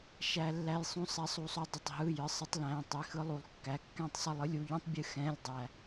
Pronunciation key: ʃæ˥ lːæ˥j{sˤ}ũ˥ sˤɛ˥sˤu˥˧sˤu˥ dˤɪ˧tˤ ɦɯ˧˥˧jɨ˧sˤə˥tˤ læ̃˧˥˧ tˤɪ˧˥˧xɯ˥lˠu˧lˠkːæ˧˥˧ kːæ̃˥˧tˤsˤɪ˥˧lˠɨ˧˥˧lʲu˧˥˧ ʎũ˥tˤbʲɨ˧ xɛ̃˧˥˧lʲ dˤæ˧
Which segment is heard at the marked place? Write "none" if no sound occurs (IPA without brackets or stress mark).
sˤ